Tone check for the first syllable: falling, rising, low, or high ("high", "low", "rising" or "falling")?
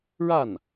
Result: falling